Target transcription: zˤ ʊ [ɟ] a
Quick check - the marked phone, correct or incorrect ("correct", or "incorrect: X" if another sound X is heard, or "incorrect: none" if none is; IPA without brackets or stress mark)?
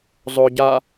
correct